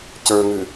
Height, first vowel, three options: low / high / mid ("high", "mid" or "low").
mid